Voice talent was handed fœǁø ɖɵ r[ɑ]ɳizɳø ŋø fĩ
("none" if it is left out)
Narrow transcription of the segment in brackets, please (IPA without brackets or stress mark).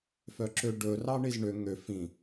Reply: ɑ